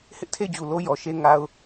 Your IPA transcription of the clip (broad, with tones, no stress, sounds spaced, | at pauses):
h ɪ˦ ʔ tʰ e˦˨ ɪ̯ d͡ʑ u˨ l o˦ j ɔ˨ ʃ e˦ ŋ a˦ ʊ̯